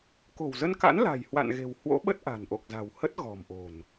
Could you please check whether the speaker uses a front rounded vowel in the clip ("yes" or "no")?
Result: no